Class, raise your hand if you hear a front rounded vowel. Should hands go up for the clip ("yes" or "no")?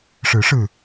no